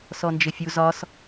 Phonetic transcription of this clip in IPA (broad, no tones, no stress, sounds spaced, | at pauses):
s ɔ n d͡ʒ ɪ fʲ u z ɒ s